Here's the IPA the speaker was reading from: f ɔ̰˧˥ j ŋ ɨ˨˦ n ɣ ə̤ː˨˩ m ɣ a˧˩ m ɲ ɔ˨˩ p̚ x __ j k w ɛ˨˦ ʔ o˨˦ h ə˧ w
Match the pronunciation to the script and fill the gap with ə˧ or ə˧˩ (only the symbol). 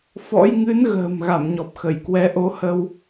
ə˧˩